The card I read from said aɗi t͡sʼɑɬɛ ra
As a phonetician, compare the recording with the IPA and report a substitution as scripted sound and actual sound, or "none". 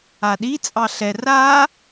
none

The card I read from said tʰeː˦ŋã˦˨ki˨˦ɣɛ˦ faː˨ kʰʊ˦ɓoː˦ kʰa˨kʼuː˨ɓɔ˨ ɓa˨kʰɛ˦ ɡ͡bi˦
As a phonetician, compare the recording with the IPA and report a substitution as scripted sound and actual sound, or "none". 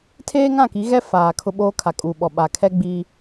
none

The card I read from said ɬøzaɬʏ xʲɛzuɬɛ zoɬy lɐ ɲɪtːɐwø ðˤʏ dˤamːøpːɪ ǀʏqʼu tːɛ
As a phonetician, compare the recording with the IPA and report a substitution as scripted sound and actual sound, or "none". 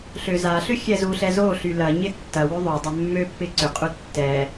none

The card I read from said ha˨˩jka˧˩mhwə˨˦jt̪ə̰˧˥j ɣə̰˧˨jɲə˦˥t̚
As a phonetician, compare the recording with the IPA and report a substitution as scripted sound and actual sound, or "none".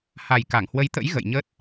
m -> ŋ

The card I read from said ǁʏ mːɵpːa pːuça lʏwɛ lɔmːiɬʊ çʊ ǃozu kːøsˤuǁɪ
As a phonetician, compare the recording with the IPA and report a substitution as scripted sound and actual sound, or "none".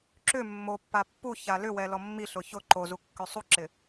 ɵ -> o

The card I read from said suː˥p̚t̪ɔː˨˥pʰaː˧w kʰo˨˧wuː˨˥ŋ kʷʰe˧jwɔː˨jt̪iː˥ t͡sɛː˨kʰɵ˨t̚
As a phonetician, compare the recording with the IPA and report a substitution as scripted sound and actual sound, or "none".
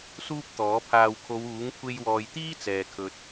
none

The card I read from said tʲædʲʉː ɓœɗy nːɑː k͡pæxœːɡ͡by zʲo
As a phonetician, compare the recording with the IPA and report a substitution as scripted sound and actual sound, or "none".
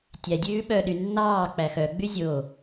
œː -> œ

